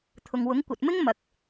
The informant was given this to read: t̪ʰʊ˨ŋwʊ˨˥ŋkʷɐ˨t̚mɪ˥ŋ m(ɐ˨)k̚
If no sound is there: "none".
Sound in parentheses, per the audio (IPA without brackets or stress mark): ɐ˨